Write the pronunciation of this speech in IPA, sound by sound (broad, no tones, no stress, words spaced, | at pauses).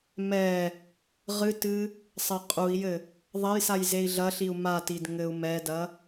mɛ | ʁɨtɨ | sˤɘqʼui̯jɘ | ðˤɐjsaj zei̯ɮɐɬiu̯ matid ŋɘu̯mɛdɐ